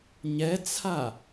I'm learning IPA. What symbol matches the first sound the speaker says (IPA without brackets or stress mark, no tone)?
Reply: ɲ